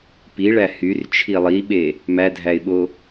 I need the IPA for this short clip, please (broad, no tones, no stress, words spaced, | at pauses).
piɭæ hyrt͡ʃʰi lˠiɓe | mædʱæɪ̯ɓo